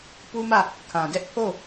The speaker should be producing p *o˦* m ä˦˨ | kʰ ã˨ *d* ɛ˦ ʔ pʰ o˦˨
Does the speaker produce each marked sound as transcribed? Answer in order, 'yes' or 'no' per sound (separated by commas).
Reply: no, yes